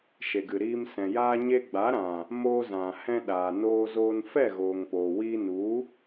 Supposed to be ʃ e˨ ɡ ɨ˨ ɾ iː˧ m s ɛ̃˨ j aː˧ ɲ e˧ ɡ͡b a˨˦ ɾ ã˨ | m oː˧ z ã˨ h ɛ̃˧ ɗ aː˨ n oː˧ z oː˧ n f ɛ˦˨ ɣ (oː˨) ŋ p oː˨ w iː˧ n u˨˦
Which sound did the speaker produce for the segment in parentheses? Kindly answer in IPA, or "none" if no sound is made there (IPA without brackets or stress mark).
oː˨